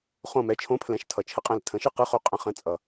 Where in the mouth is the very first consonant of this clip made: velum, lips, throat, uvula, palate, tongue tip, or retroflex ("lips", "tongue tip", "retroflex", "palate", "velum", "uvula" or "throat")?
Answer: uvula